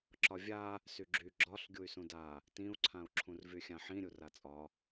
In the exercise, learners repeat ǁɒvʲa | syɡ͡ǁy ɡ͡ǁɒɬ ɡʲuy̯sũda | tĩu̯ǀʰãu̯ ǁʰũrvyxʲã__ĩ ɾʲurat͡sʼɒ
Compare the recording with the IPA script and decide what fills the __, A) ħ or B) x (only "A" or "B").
A